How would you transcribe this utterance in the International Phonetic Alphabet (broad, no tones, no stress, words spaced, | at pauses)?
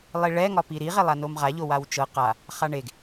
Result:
lˠiɭɛ ŋɒpiɾi ʁelˠanomʁa ʎowawt͡ʃɤ qa | χaɳeɡ